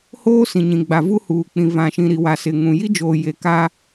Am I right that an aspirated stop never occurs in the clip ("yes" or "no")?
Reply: yes